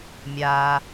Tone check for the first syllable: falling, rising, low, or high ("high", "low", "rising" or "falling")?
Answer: low